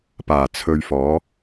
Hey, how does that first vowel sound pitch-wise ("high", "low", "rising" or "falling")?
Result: low